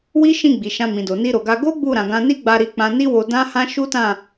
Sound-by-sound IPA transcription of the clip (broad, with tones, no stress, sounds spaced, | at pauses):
w i˦ ʃ ĩ˦˨ ɡ͡b i˨ ʃ ã˧ m ĩ˨ d o˨ n i˧ ɾ o˨ ɡ a˧ ɡ o˦ ɡ͡b u˦˨ ɾ ã˨ ɡ ã˧ n i˦ ɡ͡b a˧ ɾ i˧ k͡p ã˧ n i˦ w o˧ d ã˦ h ã˦ ʃ u˦ t ã˦˨